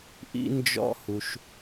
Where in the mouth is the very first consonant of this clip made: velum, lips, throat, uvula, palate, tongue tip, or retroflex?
throat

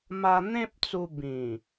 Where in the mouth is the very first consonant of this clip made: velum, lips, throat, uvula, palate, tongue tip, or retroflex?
lips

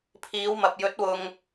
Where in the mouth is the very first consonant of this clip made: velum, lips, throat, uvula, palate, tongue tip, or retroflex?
lips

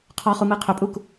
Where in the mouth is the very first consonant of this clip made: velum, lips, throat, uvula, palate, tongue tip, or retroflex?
uvula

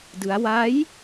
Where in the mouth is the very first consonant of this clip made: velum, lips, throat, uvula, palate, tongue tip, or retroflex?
tongue tip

